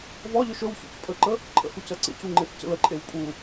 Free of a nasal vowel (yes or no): yes